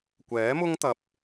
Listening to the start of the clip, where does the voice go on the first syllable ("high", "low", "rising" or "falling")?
rising